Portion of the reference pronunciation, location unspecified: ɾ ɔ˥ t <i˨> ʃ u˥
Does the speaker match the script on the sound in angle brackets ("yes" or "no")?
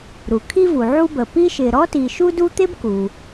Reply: yes